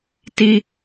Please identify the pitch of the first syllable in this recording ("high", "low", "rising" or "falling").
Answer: high